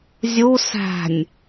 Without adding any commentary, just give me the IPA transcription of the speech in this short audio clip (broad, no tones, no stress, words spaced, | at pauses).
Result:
zʲu sæ̤nʲ